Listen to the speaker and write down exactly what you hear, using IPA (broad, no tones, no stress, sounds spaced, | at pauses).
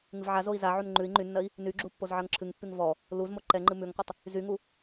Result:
ŋ ɨ v ʕ a z o i̯ z a ʕ u n ŋ͡ǃ ʉ i̯ ŋ͡ǃ y nː ɜ i̯ | n y ɡ͡ǁ u pː o z ʕ ɜ ŋ ǁʰ ɨ ŋ pː y ŋ v ɔ | l u z m o ǃ ɛ ŋ͡ǃ ɨ m ʉ ŋ qʷ ɨ tˤ | z y ŋ u